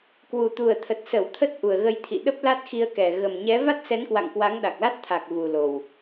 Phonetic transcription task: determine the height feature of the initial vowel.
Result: high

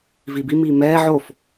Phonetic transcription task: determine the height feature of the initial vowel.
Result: high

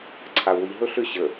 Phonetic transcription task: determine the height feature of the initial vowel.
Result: low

